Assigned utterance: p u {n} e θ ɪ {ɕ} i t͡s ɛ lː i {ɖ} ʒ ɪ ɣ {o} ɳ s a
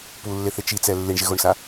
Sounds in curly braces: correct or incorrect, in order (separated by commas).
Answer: incorrect, incorrect, incorrect, correct